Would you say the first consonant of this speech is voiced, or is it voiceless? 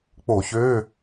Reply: voiceless